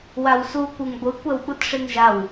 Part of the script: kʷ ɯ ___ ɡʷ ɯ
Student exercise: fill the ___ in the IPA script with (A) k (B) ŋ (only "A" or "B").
B